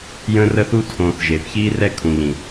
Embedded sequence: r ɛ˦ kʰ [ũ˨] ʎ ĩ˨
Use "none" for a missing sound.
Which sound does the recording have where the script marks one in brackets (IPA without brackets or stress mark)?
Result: ũ˨